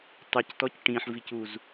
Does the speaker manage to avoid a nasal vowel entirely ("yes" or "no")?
no